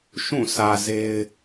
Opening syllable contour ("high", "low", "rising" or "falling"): falling